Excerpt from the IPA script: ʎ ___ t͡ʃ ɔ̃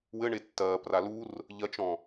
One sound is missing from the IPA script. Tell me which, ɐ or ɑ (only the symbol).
ɐ